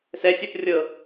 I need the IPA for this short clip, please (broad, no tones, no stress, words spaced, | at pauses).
sɛsʲɜp rʲɤ